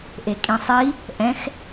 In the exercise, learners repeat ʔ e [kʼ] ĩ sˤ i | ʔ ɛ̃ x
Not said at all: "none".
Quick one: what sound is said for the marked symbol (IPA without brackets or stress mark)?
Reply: kʼ